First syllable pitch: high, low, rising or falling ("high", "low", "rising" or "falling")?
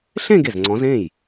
falling